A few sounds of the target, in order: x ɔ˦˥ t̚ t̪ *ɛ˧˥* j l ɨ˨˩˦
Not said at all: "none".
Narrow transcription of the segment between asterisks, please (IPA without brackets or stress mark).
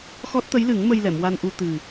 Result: ə˧˥